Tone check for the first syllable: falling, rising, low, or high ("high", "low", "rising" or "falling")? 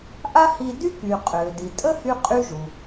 high